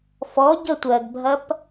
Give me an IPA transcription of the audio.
f ɔ ɟ ə tʷ ɜ ɡ bʱ ɐ p

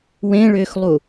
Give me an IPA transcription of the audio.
w ẽ ɭ ʏː x lˠ u

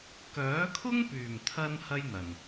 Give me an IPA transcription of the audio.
k œː˨˥ kʰ ʊ˥ ŋ p yː˨˩ m t̪ʰ ɐ˧ n h ɐ˥ j n̪ ɐ˨˩ n

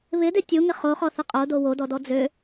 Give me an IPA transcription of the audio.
β ɪ d ɪ tʲ u ŋ ɪ χ o χ ɔ θ ɪ qʼ o d o w o d ɔ d ɔ d͡z ø

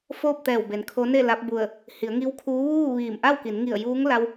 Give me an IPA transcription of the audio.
f oː˥˨ p̚ t̪ ɛː˧˩ w b e˩˧ n kʰ o˧˥ n e˥˨ l a˧˥ p̚ b u˧˩ ə̯ | h i˩˧ ə̯ ŋ i˧˥ w kʰ uː˧˥ ʋ uː˥˨ ʋ iː˧˩ m ʔ a˥˨ w k i˩˧ n ŋ i˧˩ ə̯ j uː˧˥ ŋ l a˧ w

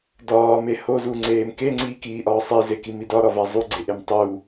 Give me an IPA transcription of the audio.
d ɒː m e h o z u ŋ͡ǀ eː m k e ŋ͡ǀ iː k iː ʔ ɒː sˤ i z e k i m i d ɒ ɾ ɒ v æ zˤ u ɡ͡ǀ e ʔ e m tˤ u

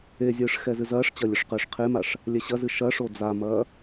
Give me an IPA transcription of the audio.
e zʲ ɨː ʂ x ɛ z ɨ z ɐː ʂ t͡ɕ ɐ lʲ ɘ ʂ q ɘː ʂ qʰ e m a ʂ | lʲ ɛ ɕ ɐ z ɨ ʃ ɐ ʂ o d͡z a m ɐː

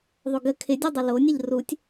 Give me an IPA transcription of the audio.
ðˤ o ɡ ə kʰ ɪ dʲ u dˤ ə l o nʲ ə ʎ r u tʲ

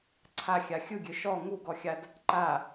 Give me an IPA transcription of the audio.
ǀʰ a xʲ a xʲ ɯ ɡʲ ø ʃ ɔ ŋ u ɡ ɔ xʲ a d | ǃ a

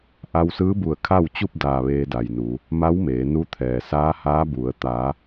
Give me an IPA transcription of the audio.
ʔ a˧ w s ɯː˧˥ b u˧˩ ə̯ kʰ a˥˨ w t͡ɕ u˥˨ p̚ d aː˧˩ ʋ eː˧ d a˩ j n u˩˧ | m a˧˥ w m eː˩˧ n u˧˥ t̪ʰ ɛː˩ s aː˧˥ h aː˧˥ b u˩˧ ə̯ t̪ a˩˧

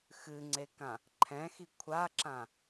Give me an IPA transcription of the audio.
x ɨ ŋ͡ǀ e k ã | ǃʰ ɛ̃ x i kʷʰ a ǁ ã

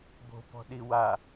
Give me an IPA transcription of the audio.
b o̤ p ɔ̤ ɗ i w a

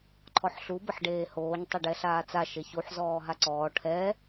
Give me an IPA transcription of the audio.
ǃʰ ɔ ħ ɬ u b ə ħ ɖ eː h oː ɲ tˤ ɛ ɖ ɛ ɬ aː t͡s a ʃ e ç u ħ z ɔː ɦ a ǀ ɔː ʈʰ ɛ

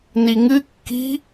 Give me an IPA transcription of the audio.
n i ŋ ɨ kː i̤

